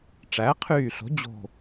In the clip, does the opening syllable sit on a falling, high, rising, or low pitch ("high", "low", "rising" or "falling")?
rising